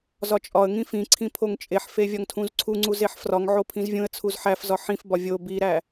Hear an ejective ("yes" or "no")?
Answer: yes